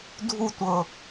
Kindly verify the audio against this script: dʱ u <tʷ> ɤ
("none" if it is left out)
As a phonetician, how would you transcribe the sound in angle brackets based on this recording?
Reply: tʷ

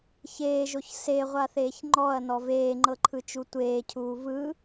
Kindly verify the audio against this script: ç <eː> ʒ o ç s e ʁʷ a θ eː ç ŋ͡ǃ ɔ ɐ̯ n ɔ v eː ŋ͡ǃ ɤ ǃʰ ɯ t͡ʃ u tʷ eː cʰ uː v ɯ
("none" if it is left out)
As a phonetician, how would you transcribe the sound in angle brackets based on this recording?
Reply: eː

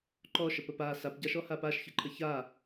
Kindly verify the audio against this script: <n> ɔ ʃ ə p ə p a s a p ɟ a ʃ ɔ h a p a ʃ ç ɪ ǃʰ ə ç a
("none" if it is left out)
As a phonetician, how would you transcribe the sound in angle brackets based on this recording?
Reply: ǃ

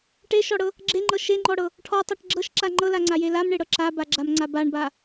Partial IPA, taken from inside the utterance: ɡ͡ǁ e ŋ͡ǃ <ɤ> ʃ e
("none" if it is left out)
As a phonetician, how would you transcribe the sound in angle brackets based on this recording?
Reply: ɤ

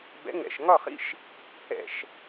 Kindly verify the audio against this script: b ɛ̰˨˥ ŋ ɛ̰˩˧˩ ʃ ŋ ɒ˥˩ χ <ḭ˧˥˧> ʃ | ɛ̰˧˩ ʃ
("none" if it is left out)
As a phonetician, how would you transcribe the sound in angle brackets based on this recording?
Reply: ḭ˧˥˧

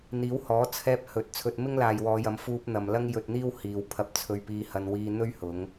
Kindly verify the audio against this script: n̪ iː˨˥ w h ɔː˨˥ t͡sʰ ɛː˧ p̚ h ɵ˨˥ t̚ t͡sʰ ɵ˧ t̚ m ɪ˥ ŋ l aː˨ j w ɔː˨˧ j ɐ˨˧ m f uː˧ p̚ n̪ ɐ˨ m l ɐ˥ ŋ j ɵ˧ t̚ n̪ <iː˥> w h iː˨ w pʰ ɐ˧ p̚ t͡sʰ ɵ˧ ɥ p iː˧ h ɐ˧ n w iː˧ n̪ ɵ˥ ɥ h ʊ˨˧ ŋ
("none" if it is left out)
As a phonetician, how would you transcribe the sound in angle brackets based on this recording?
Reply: iː˥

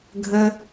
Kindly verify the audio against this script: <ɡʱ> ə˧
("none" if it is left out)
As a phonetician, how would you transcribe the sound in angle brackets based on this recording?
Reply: ɡʱ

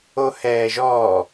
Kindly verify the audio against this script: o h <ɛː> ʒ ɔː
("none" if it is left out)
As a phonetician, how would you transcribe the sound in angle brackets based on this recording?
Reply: ɛː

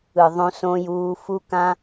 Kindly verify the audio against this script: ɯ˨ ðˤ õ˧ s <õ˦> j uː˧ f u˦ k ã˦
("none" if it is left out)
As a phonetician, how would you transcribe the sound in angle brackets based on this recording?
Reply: õ˧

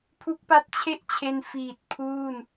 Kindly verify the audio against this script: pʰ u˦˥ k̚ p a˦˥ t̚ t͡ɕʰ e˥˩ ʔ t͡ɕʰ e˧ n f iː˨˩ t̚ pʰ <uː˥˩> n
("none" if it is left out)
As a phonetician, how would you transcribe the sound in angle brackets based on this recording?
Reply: uː˥˩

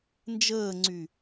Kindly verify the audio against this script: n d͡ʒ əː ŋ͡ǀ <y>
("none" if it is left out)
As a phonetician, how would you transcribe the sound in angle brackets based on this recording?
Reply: y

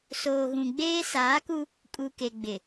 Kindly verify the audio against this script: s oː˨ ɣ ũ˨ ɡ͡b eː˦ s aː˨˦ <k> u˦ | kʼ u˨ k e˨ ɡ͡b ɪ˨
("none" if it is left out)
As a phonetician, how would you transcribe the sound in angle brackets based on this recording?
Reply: k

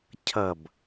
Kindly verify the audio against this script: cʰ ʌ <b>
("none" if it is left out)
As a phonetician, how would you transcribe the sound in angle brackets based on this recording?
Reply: b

